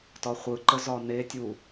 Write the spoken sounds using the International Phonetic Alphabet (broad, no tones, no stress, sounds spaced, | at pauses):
t ɒ χʷ ɯ ǃ ə z ɒ n e tʲ u